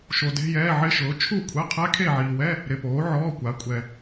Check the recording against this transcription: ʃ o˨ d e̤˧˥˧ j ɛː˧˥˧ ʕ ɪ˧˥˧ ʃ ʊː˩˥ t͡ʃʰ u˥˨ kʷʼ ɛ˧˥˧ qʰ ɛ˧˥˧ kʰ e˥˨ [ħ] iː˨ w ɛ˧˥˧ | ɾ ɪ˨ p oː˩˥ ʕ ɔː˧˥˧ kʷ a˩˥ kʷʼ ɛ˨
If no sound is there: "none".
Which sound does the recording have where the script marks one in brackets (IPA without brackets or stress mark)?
ʕ